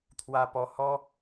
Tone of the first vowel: low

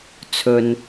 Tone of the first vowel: low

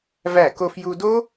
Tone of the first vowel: falling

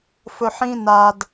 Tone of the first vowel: low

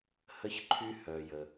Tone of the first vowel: high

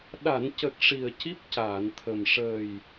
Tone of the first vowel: low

